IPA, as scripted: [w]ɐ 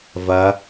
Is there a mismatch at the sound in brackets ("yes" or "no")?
yes